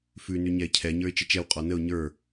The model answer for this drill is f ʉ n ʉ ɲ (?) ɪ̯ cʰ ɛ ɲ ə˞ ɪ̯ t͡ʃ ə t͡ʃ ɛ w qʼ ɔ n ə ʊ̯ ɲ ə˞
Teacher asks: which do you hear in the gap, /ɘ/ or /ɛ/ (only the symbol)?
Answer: ɛ